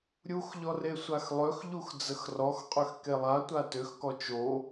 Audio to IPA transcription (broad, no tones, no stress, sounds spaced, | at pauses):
ɾʲ u x ʎ ɔ r e sʷ a x lˠ ø x ʎ u x d͡z ə x r ɔ x qʼ ø x k e lˠ a tʷ a t ø x k ɔ t͡ʃ o